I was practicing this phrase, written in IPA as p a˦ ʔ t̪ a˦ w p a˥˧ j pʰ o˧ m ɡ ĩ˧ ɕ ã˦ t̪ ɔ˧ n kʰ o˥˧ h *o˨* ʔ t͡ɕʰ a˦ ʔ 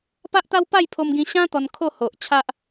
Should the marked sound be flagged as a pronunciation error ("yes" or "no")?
no